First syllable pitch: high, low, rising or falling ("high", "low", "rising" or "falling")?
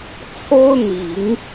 high